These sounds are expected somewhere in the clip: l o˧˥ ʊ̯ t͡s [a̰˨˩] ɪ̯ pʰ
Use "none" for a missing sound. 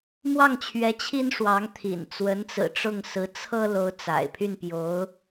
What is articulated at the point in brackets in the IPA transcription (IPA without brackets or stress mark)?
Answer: a̰˨˩